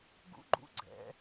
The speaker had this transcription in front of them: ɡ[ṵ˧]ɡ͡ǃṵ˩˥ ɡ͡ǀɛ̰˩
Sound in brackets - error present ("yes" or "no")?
yes